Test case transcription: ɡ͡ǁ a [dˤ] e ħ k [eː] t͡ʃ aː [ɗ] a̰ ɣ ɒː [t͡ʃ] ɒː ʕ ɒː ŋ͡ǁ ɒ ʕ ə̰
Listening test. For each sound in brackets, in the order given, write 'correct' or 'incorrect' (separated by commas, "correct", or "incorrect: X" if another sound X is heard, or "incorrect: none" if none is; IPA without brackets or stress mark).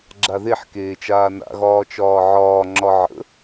incorrect: ð, correct, incorrect: n, correct